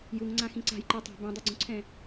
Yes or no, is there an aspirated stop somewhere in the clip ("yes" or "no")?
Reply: yes